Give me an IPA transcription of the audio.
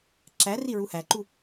ǁæ riɹuhæǃu

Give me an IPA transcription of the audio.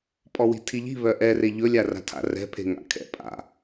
pʼɔwi̤tʰiʎi̤ βœʔɛre ʎɵlʲa ra̤tʰa̰rɛ̤pʰe̤ ŋa̰kʰɛ̰ pʼa̰

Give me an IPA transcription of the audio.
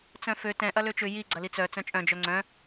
t͡sœ̃fø tɛ̃ ʔɐløt͡ʃʏ ji ɡ͡ǀɐlit͡sœ t͡sœ̃t͡ʃʼœ̃ d͡ʒœŋ͡ǀœ̃

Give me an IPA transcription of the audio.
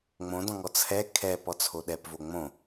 ŋ͡mõdɔ̃ŋɔ t͡sʰɛ kʰɛp ɔt͡sʰoɗɛp voŋ͡mõ

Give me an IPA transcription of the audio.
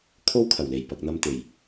kʰo˥wkʰɐ˨˩wle˨˩j pɐ˨k̚n̪ɐ˧m t̪e˨˩j

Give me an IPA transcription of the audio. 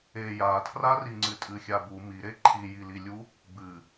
e jatʰrariŋ͡ǀɨ tʼɨxʲabu miɾe ǃʰijililʲu | bɨ

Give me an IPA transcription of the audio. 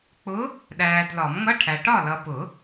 k͡pʊ˧˥ | ɗæː˨dlɒ˨˩˦mŋʌ˧˥˧ʈʰæ˨ ʈɒ˥˨ lʌ˨pʊ˨˩˦

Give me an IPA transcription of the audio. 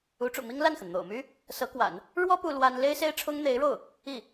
u˧˥ʈ͡ʂṵ˨˩mi˥ŋ la˥˩nxə˩n n̪o̰˨˩ʊ̯my˥ | sɤ˧˥kwa̰˨˩˦n | ɻwɔ˥ pu˥lwa˥n le˥ɪ̯se˥ɪ̯ʈ͡ʂʰʊ˥ŋ n̪e˧˥ɪ̯ɻo˥˩ʊ̯ | i˥˩

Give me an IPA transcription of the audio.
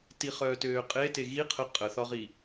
tiχœːtøːqʼe teɣi qʰə qʼəθɒʁi

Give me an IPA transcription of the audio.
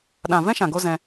ɗã˨vɛ̃˦ʃã˨ɡo˧ zɛ̃˧

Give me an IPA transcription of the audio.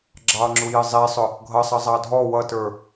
ɡ͡ǁɑŋ͡ǁujɪ zˤisˤʊ | ɡʱʌsˤʌ zˤɑdʱɔ wʌtə˞

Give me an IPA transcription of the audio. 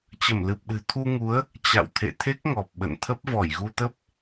t͡ɕə˧˩mlɨ˨˩p̚ɗɨ̤˨˩ t̪ʰu˧ŋu˨˦ə̯ | t͡ɕa̰˧˨w t̪ʰḛ˧˨t̪ʰe˦˥k̚ŋɔ˨˩p̚ ɓə̰˧˨nt̪ʰə˦˥p̚ vɔ˧˩jɣu˧t̪ə˦˥p̚

